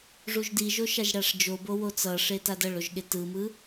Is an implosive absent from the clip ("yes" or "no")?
no